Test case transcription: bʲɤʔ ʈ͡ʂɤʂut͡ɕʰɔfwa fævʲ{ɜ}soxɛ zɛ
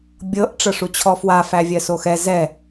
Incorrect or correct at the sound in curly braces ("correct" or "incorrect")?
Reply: correct